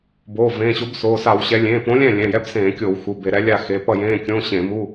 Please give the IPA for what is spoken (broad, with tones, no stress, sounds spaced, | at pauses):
b oː˩˧˩ v ẽː˩˧˩ ɕ o˨˥ b s oː˩˧˩ s a˧˩˧ w ɕ ɛ˨˥ lʲ ẽː˩˧˩ p õ˨˥ lʲ ɛ̃˥˩ lʲ ɛ̃˩˧˩ j ɛ˧˥˧ b s ẽː˧˩˧ kʲ oː˧˩˧ w x u˩˧˩ b e˧˩˧ ɾ ɛ˨˥ lʲ a˥˩ x e˩˧˩ p ʌ˥˩ j ẽː˧˥˧ kʲ õ˧˥˧ ɕ ẽ˧˩˧ m u˧˥˧